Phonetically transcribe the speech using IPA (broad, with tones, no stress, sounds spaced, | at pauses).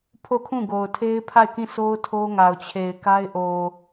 pʰ o˦˨ kʰ ũ˦˨ ɡ o˨ ʊ̯ tʰ e˦ ɪ̯ pʰ a˦˨ ɪ̯ k ĩ˦˨ s o˦ ʊ̯ tʰ o˦ ŋ a˨ ʊ̯ t͡ɕʰ e˨ ɪ̯ k a˦ ɪ̯ ʔ o˨